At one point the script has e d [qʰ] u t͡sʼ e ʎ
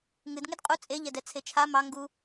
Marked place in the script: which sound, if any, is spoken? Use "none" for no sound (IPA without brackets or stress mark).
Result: qʼ